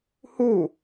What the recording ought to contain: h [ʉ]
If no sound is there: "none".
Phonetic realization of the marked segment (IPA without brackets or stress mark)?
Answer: u